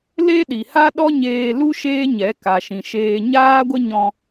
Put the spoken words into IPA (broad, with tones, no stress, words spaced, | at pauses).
le˦ɗi˨ ha˦ɗɔ˦ɲeː˧lu˦ ʃeː˦ɲɛ˨˦ ka˨ʃĩ˨ ʃeː˧ ɲaː˦ɡʷə˦ɲɔ̃˧